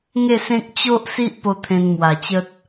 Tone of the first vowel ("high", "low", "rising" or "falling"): falling